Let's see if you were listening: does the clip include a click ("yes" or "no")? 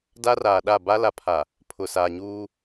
no